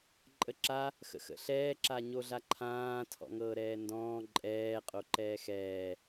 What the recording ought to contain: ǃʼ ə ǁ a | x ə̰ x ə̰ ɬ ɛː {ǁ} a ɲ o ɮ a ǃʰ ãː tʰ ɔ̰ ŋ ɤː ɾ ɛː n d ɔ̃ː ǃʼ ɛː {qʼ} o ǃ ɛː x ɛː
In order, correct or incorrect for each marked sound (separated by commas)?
correct, correct